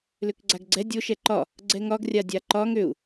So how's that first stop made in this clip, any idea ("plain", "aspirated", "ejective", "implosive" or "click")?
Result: plain